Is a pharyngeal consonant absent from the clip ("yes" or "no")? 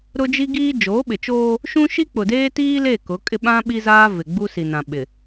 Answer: yes